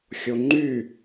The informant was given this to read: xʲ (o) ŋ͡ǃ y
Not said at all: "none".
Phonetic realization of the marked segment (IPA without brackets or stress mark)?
o